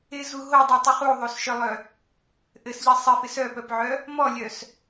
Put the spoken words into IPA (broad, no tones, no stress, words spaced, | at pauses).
ɪzu ɦodˤitˤɪ χuðˤosʃœlˠœ | ʔɘsʎi sˤɪfɪs œpœpʕœ | mɔlʲœs